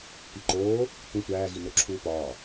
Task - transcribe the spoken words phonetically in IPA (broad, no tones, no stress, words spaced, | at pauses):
piǃoː | tʷĩ tʷæːɣino ǁʰuːpɒː